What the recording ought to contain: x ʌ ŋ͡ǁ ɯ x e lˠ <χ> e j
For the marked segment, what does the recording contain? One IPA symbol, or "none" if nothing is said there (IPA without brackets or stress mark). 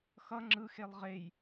ʁ